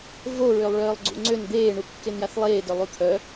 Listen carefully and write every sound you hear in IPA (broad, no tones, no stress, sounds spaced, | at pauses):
v o ɹ ø lˠ ɭ œː lˠ ɡ͡ǀ ṵ ŋ͡ǀ ø n d̪ eː ɳ u kː e n j a θ lˠ eː d œ lˠ u t̪ʰ œ